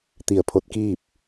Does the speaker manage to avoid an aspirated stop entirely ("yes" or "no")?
no